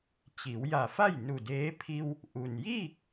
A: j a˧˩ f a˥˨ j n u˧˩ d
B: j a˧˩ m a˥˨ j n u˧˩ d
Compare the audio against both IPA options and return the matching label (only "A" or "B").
A